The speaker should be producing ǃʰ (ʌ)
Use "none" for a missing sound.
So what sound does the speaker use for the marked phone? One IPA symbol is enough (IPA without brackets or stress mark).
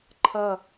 ʌ